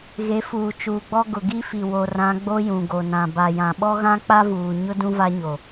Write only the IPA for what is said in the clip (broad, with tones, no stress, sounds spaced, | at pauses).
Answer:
ɣ e˨˦ f uː˨ t͡ʃ uː˨ ɡ͡b ɔ˦ ɡ ʊ˨ ɡ i˦ f i˨ w o˨ r ã˨˦ ɡ͡b o˦ j ũ˨ ɡ o˨ n ã˨ b a˨ j ã˨ ɓ ɔ˦ ɣ ã˦ k͡p a˦ v uː˨ ɲ ʊ˦ d ũ˦ v a˦ ɲ o˨